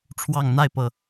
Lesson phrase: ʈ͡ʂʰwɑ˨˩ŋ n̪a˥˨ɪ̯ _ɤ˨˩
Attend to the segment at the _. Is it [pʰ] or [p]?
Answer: p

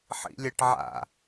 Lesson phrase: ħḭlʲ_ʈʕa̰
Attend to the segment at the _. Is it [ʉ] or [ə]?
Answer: ə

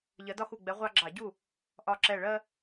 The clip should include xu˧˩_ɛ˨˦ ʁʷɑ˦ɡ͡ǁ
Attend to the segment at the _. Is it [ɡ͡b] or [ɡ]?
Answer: ɡ͡b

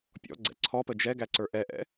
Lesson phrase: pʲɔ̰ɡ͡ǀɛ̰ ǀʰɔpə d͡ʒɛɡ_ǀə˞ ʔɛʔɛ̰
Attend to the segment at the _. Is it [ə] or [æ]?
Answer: æ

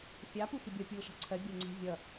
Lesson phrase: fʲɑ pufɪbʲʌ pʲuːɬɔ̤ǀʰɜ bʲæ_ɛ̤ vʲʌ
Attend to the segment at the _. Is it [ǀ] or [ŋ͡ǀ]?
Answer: ŋ͡ǀ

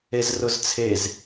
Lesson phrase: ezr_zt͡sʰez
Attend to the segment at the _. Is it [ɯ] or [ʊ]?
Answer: ʊ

